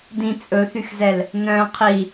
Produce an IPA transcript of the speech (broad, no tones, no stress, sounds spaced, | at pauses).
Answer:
d ĩ t͡sʼ ɵ θ y x z ɛ l | n œ̃ qʰ i